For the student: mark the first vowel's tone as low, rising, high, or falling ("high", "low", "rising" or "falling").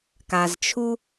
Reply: low